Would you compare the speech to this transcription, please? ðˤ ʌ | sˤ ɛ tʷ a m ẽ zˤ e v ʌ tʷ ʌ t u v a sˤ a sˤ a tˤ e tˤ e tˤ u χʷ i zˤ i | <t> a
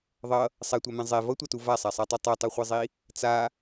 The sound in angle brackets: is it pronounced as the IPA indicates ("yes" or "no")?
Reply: no